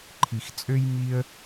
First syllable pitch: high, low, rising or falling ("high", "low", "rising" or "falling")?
low